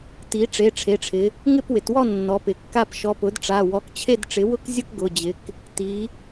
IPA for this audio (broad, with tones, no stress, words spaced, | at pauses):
ti˩˥ ʈ͡ʂe˩˧˩ʈ͡ʂʰe˩˧˩ʈ͡ʂʰɪ˩˧ | ŋɪ˥˨pwɪ˩˧twɔ˥˨ nːɔ˩˧ pɪ˩˧kːa˥˨p ʃɔ˩˧˩pʊ˩˥dʈ͡ʂa˩˧˩ wɔ˩˧˩k t͡ɕʰe˥˨dʈ͡ʂɪ˩˥ wʊ˥˨kzʲʊ˥˨k ɡʊ˩˧˩ d͡ʑɪ˩˧k | ti˩˧